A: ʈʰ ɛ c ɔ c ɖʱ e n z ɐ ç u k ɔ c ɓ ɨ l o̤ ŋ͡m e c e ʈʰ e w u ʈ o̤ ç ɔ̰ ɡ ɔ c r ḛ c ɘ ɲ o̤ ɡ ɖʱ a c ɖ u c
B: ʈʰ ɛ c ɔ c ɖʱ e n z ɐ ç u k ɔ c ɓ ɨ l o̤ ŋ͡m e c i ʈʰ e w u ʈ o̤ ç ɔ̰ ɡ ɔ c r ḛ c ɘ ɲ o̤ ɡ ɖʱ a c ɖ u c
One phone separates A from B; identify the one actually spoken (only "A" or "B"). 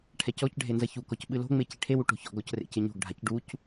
B